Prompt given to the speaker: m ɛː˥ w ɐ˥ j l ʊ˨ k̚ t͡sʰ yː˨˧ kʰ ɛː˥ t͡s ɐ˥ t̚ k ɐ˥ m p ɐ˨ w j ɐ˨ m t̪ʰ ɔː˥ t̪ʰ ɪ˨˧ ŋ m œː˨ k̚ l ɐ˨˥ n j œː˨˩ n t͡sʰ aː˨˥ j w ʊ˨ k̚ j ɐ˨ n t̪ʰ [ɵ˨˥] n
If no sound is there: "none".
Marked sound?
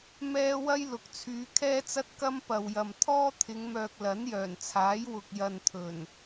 ɵ˨˩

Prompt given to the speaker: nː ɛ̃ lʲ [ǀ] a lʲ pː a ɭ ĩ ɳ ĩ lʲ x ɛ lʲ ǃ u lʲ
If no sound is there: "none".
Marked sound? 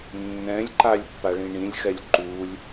ǃ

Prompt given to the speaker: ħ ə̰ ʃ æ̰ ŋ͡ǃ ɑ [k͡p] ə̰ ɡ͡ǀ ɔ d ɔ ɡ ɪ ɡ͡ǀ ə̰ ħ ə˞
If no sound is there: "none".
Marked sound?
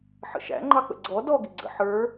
k͡p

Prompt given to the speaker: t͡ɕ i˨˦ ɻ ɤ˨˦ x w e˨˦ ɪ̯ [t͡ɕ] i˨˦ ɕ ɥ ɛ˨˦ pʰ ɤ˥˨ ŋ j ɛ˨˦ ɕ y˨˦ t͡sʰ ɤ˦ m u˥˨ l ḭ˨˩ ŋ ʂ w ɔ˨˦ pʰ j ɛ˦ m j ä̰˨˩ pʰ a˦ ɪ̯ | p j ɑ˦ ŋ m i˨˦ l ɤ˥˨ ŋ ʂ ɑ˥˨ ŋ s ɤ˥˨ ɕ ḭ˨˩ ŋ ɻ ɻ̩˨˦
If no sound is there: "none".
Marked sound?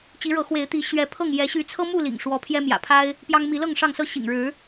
t̪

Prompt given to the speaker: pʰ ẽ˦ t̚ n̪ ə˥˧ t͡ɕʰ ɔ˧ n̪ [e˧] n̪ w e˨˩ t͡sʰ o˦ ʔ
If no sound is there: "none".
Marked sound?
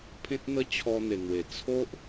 e˨˩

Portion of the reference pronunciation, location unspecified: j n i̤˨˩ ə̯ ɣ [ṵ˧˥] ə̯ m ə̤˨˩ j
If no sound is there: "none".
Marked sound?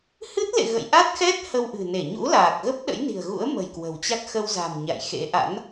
ṵ˧˥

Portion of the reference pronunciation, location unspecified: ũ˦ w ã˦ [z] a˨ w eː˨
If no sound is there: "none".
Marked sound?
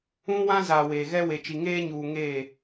z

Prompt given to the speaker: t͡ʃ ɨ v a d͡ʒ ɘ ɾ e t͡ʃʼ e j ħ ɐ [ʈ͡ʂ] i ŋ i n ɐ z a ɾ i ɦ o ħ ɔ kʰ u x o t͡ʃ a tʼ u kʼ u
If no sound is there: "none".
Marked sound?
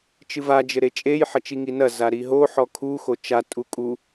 t͡ʃ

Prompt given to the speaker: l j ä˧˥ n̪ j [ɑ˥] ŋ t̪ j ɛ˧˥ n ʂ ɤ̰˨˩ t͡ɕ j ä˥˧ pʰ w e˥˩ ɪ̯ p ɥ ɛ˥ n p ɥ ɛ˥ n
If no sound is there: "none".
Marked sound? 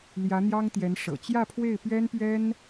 ɑ˥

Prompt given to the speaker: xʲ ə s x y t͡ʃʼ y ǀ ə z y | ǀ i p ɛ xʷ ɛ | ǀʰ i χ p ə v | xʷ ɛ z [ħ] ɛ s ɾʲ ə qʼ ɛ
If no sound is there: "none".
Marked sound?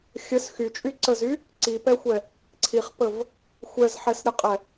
ħ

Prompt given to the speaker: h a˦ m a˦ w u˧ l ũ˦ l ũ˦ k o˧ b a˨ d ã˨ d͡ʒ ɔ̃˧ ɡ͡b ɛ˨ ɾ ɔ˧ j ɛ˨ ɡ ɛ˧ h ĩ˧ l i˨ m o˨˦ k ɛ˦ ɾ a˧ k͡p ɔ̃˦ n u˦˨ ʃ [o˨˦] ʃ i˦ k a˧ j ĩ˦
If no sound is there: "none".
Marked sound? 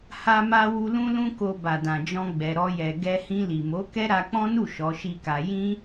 ɔ˨˦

